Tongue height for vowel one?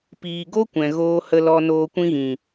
high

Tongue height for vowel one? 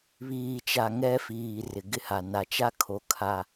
high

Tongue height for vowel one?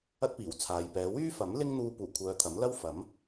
low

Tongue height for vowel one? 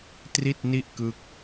high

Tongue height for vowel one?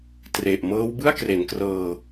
mid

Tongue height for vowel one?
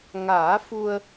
low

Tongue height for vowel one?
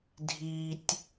high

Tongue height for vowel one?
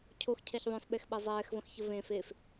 mid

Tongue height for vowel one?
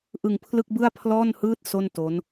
high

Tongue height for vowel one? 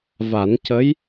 low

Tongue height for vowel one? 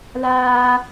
low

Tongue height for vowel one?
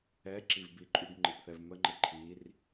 mid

